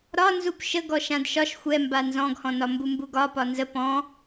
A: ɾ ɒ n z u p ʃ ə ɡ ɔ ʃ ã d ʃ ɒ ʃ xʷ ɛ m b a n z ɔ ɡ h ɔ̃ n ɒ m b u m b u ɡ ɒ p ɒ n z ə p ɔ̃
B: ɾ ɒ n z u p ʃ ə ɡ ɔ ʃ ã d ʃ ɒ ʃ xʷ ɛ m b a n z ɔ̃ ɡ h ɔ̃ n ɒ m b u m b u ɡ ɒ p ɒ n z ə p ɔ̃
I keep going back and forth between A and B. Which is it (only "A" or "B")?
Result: B